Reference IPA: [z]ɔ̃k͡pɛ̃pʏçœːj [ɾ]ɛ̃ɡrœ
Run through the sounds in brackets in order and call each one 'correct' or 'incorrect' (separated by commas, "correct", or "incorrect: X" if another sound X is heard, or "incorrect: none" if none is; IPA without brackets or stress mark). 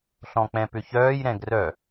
incorrect: ɬ, correct